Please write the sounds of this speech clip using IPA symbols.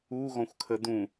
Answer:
u ɣ ɔ̃ xʷ kʰ ə d̪ ũ

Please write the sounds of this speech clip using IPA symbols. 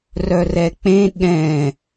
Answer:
r œ r ɛ k͡p ẽ ɠ ɛ̃

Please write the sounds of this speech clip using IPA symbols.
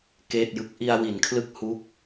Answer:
k eː˥˩ t̚ j ɯ˦˥ k̚ ʔ i˧ a̯ w i˩˦ n kʰ l ɯ˦˥ k̚ h u˦˥ k̚

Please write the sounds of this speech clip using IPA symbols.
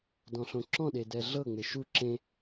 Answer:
d ɔ̃ ɬ õ ǁ ɔ̃ ɗ e d ɛ ɮ ɤ ŋ͡m e ʃ u ǁ ẽ

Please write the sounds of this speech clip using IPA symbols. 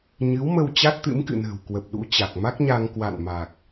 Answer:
ɲ ɨ˨˦ w m ə˧ w t͡ɕ a˦˥ t̚ t̪ ɨ̰˧˥ m k ɨ̰˧˨ n ə̤ː˨˩ w k w ə˨˩ p̚ ɗ ṵ˧˥ t͡ɕ a˨˩ k̚ m a˦˥ k̚ ɲ a˧ ŋ k w a̰˧˨ n m a˨˩ k̚

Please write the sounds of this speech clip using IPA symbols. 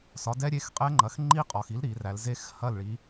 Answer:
s ɒ˩˥ d ɛ˦˥ ɾʲ e˧˥˧ x qʼ ɛ˦˥ ŋ͡ǃ ɐ˩˥ x ŋ͡ǃ i˦˥ qʼ ɒ˩ x i˩˥ l ɾ i˩˧ r æ˩˧ l z e˦˥ x h ɐ˦˨ l ɭ i˩˧

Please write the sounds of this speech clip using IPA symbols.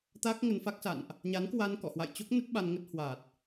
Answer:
t̪ a˦˥ k̚ ŋ ə˧ n f a˦˥ k̚ s a̰˧˨ n ʔ | ɲ a˨˦ n k w a˧ n k ɔ̰˧˨ h w a̰˧˨ j t͡ɕ o˦˥ k̚ n ə˦˥ t̚ ɓ a˧ n ŋ ə˦˥ t̚ h w a˨˩ t̚

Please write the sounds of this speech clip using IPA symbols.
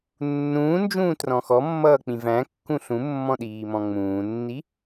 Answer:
nː ũː n d͡ʒ ũː t r ɔ̃ x ɔ mː ʌː k͡p ĩ v æ̃ kː ũ ɬ ũ mː ɔ̃ ɗ iː m ɔ̃ ŋ͡m ũː nː i

